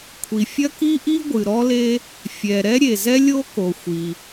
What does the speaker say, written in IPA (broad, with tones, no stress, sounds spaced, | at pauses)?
kʷʰ i˩ fʲ ɐ˥ k i˥ ʔ i˥ ɡʷ ɨ˩ ɾ ɔ˥ l e˥ | fʲ ɛ˩ ɾ ɛ˥ ɾʲ e˩ z ɛ˥ lʲ o˥ k o˩ xʷ i˩